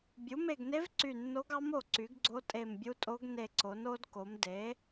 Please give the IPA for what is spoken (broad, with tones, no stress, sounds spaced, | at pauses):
bʲ u˩˥ m e˧˩ ɡ n e˧˥ v ǀ y˧˩ nː o˧˥ ɡ ɑ˧˥ m o˧˩ ǀ y˩˥ ɡ ɡ͡ǀ o˧˥ tʼ e˧˩ m bʲ u˧˥ tʼ o˧˥ ɡ n e˧˩ ǀ o˩˥ n o˧˥ d k o˩˥ m d e˩˥